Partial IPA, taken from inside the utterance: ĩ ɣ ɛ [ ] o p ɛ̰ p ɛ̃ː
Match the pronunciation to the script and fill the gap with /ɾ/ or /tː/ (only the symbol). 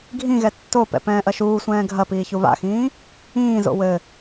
tː